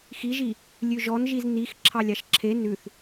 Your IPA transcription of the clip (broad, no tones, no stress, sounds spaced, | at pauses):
x i ʒ i | lʲ ʉ ʒ ɔ n ʒ i z n i x ǁʰ ɑ lʲ ɑ ʃ ǁʰ e n ʉ θ